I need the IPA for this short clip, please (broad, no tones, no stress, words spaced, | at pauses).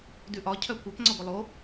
dʉʔɒ cʰœkʷœp ŋ͡ǀɒɡʷilˠo